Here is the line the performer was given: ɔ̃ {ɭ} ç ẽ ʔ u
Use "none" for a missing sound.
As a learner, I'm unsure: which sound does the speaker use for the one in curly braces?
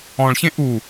ɭ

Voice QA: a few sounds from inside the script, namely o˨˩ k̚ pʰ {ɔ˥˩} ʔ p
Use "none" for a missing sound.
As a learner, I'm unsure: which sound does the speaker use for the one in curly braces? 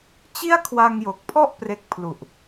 ɔ˥˩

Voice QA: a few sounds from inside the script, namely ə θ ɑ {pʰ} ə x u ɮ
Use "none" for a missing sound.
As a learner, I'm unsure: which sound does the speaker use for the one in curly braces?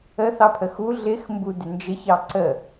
pʰ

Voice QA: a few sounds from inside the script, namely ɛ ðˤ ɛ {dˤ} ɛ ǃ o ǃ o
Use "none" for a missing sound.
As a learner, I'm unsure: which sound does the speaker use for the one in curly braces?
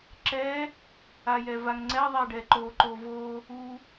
ɖ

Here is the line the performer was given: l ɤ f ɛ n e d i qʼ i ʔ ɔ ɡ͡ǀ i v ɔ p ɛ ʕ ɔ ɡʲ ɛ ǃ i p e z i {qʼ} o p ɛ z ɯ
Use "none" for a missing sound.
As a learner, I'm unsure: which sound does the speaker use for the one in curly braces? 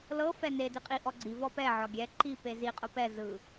qʼ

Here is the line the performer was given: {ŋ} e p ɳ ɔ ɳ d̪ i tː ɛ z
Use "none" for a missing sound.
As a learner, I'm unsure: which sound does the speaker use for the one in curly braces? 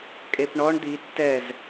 kʼ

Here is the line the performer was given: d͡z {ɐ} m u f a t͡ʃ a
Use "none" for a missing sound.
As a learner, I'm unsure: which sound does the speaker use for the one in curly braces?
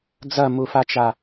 ɐ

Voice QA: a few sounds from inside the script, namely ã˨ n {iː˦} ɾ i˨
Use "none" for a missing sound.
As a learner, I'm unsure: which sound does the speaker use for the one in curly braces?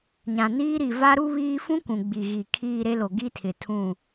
iː˦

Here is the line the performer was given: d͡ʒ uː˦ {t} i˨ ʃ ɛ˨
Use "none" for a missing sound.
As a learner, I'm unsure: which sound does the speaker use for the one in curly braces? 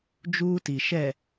t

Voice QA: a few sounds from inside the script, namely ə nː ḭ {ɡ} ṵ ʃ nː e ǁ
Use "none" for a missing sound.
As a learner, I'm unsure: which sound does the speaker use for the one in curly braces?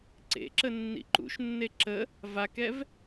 ǃ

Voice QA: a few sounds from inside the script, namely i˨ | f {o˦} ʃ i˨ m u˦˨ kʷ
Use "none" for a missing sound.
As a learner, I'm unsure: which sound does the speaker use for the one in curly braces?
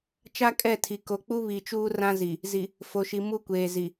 o˨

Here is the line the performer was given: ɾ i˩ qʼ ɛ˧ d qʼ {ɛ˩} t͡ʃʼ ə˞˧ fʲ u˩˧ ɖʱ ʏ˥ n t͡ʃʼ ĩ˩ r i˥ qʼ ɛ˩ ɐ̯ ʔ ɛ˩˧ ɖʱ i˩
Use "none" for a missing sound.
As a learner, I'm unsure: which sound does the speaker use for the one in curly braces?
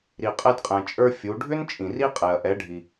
ɛ̃˩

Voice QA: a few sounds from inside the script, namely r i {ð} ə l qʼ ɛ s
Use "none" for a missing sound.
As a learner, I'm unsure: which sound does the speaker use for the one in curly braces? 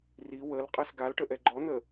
w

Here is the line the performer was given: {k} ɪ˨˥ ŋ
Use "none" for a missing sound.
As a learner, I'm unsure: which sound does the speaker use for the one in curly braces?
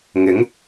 ŋ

